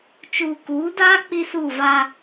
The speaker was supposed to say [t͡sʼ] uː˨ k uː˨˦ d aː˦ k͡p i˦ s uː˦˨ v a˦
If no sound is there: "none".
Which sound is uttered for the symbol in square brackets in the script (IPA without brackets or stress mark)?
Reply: t͡ʃ